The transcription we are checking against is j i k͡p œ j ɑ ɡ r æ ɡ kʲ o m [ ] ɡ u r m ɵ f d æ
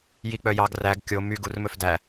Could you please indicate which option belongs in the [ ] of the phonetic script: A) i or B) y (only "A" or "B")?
B